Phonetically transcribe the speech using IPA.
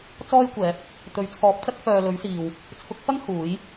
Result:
t͡s ɔː˥ j kʷ ɛː˨˥ p̚ | t̪ ɵ˨˥ ɥ t͡sʰ ɔː˨˥ p̚ t͡s ɐ˥ k̚ f œː˨ l ɵ˨˥ ɥ s iː˨ w | t͡sʰ ʊ˨˥ k̚ f ɐ˥ ŋ h uː˨˥ j

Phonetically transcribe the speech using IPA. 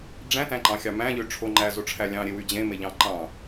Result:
ɖ͡ʐ æ̃ t æ̃ ǃ ɑ̃ xʲ ɑ m æ̃ ʎ ø ʈ͡ʂʰ o ŋ͡ǃ æ z o ʈ͡ʂʰ æ lʲ ɑ̃ ɾʲ e w y d͡ʑ ẽ m e ʎ ɑ̃ ǃ ɑ̃

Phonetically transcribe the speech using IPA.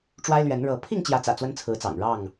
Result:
ʈ͡ʂ w a˦ ɪ̯ l ɥ ɛ˨˦ n ɻ ɤ˨˦ pʰ i˥˨ ŋ t͡ɕ j ä˨˦ t͡s ä̰˨˩ t͡s w ə˦ n t͡sʰ ɹ̩˨˦ t͡s ɑ̰˨˩ ŋ ɻ ɑ˥˨ ŋ

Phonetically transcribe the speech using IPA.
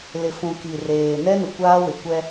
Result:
l ɪ˨ f ũ˨ k i˨ r eː˨ n ɛ˦ n ʊ˨ kʷ aː˦ w ɪ˨ kʷ ɛ˦

